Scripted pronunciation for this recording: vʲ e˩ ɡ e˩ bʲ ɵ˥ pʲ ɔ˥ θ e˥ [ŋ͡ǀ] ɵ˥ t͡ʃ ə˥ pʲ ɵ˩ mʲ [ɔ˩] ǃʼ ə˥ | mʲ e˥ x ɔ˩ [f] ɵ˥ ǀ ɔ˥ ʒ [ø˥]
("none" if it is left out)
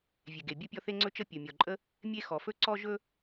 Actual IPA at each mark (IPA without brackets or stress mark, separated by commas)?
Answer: ŋ͡ǀ, ɔ˩, f, ɵ˥